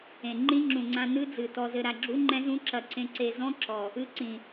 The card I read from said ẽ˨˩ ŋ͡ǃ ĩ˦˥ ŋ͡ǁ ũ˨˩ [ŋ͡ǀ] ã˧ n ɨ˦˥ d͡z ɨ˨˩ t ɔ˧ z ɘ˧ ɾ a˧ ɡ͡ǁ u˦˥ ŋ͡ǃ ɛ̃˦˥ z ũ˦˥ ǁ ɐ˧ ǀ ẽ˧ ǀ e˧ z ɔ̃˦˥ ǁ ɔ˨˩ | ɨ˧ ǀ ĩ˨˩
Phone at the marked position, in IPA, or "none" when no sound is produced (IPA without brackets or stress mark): ŋ͡ǀ